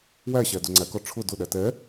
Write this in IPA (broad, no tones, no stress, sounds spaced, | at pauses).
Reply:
w æ ɕ æ d ʊ ŋ͡ǀ æ k ɔ ʈ͡ʂʰ ʊ d ʊ ɗ æ t ɛ